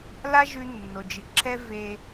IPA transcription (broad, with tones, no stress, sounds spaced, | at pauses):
l a˥ ʒ ʉ˧ nː o˩ d͡ʒ ɨ˩ ǁʰ ɛ˥ v e˧